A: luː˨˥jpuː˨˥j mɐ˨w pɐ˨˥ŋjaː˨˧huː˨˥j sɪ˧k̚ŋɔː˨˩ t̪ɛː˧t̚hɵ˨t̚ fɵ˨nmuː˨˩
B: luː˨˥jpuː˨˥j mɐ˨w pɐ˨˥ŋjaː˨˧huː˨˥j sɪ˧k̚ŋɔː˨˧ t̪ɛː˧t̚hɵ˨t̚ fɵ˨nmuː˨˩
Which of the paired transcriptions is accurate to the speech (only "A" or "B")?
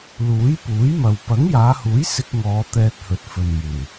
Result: B